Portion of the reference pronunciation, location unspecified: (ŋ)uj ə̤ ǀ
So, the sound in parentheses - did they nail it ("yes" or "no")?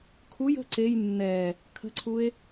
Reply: no